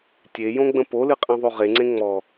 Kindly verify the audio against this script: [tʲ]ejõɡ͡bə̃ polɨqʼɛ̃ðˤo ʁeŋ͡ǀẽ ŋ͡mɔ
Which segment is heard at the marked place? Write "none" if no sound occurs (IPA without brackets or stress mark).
tʲ